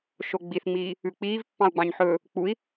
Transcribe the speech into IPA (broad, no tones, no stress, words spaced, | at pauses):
ʃoɡ͡biθŋ͡miː | ʉk͡piːv pːɑ̃u̯ɡ͡bɑ̃ɲħɵː | k͡pui̯